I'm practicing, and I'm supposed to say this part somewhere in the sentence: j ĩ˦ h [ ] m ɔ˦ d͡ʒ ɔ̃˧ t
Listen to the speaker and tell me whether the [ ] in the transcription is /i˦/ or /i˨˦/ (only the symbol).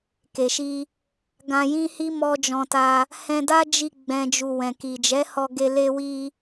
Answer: i˦